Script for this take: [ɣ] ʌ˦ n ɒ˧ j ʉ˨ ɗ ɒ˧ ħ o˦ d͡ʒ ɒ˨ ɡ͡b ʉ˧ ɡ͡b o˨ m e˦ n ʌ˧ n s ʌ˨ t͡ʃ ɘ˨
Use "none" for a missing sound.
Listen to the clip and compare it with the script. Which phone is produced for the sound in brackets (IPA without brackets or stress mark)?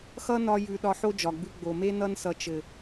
x